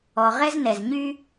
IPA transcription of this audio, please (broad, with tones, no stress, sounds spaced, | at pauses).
ɔ˩ ʁ ɛ˥ z n ɛ˩ z ɲ y˥